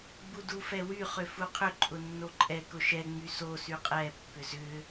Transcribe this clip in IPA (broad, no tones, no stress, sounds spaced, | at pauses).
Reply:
ɡ͡b u d u f ɛ w y χ ʏ f u qʰ ʏ ǃʼ ʊ nː o ǃʼ ɛ k ʊ ʃ ɛ ŋ͡m y s o s y qʼ ɛ pː ʏ z ʏ